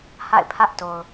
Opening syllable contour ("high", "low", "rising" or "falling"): falling